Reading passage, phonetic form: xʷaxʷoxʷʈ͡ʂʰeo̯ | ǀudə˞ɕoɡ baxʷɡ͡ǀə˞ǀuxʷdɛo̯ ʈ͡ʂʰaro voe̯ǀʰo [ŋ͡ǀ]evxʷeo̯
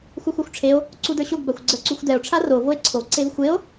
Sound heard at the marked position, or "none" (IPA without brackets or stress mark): ǀ